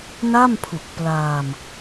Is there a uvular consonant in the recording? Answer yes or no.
no